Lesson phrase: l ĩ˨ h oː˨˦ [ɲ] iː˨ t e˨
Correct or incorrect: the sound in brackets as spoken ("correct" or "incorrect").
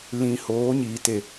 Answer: correct